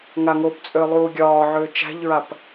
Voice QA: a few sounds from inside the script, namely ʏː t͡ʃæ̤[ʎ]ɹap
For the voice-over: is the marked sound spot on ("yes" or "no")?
yes